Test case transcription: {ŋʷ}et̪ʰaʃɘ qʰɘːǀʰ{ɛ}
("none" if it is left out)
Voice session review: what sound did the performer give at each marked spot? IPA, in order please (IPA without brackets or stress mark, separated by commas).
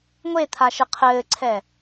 ŋʷ, ɛ